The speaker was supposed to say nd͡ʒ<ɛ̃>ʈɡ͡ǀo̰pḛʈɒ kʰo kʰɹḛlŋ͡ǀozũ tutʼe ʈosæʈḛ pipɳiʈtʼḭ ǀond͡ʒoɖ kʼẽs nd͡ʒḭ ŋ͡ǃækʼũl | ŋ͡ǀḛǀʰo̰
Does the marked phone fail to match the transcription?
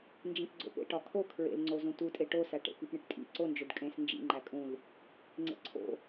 yes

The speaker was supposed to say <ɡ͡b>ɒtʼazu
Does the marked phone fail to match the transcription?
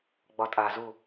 no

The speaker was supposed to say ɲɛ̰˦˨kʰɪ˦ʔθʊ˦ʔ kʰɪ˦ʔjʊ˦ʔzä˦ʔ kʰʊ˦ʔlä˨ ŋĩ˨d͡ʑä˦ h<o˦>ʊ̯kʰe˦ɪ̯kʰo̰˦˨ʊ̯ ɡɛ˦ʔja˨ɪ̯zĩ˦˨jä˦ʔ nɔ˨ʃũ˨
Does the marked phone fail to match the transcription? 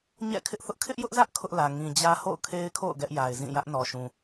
yes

